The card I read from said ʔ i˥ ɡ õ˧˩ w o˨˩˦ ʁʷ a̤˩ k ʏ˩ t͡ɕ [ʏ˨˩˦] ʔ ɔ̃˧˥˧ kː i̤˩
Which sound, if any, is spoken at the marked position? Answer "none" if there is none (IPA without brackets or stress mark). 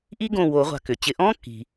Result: ɪ˨˩˦